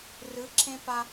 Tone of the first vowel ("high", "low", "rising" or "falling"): rising